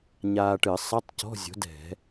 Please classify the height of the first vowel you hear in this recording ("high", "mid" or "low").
low